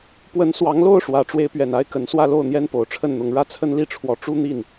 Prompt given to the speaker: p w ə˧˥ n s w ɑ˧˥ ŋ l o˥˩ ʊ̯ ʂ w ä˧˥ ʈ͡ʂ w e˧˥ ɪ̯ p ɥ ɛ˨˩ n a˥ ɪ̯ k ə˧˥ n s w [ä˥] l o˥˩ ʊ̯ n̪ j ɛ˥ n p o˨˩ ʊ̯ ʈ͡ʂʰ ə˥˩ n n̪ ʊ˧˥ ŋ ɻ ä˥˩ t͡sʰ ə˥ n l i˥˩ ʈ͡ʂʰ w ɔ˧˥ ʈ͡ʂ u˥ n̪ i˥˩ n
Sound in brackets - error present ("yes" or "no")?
yes